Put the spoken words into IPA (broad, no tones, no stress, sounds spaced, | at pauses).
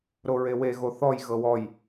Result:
ɾ o ɹ e w e ɣ o θ ɔ j ɣ ɤ w ɔ j